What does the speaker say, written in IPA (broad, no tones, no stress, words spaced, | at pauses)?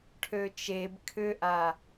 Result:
ʈʰøt͡ʃeb kʰʏʔa